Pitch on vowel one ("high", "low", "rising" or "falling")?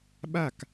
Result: falling